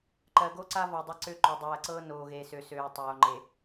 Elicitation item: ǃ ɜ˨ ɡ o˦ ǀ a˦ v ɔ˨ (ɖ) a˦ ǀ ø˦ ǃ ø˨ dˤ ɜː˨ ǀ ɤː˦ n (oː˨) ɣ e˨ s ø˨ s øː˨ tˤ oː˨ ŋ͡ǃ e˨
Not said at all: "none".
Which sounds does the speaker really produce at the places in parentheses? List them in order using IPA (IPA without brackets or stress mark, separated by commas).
dˤ, oː˨